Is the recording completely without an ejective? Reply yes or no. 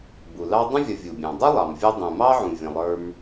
yes